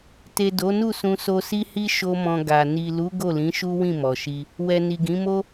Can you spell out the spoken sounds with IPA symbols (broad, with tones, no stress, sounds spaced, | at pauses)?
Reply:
t e˨ d o˨˦ n u˦˨ s ũ˧ s o˧ s i˦ h i˦ ʃ o˦ m ɔ̃˧ ɡ a˨ n i˨ l u˨˦ ɡ o˦˨ l ĩ˨˦ ʃ u˦ w ĩ˦˨ m ɔ˨ ʃ i˧ | w ɛ˨ n i˨ ɡ ĩ˨˦ m o˦